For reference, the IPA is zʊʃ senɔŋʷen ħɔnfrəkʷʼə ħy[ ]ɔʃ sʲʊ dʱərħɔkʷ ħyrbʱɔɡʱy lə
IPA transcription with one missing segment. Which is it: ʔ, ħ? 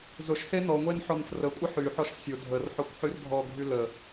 ħ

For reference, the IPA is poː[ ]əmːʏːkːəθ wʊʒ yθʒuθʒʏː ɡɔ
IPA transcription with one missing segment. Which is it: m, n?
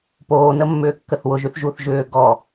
n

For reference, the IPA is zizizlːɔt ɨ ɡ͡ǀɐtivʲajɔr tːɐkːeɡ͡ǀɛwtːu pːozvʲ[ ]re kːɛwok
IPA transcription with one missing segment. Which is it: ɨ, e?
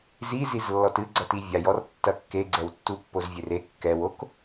e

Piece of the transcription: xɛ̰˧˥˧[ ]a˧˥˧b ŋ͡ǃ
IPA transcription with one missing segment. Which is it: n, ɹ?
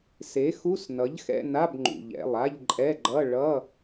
n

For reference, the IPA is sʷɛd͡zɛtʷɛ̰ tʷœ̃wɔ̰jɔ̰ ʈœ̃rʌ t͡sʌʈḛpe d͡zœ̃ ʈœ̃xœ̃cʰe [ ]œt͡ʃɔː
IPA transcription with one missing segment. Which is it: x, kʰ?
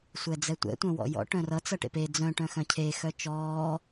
x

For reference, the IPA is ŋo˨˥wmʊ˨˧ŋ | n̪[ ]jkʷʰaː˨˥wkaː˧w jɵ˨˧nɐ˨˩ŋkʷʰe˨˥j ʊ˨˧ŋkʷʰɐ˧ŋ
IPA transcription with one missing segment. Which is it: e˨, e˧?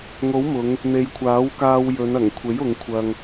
e˨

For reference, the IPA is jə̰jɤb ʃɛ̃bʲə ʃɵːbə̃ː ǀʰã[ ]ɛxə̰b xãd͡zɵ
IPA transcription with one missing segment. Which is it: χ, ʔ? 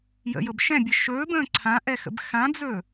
ʔ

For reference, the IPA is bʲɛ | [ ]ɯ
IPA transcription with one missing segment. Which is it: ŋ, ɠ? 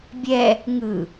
ŋ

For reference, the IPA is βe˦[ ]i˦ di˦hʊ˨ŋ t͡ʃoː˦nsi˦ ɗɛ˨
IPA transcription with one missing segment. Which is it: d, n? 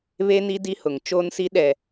n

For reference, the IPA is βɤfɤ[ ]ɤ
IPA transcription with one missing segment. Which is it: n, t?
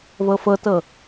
t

